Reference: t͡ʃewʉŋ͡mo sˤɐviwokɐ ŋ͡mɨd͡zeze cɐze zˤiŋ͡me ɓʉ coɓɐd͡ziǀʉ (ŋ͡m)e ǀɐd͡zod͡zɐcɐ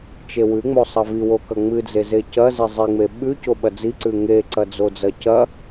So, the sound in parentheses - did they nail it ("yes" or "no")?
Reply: no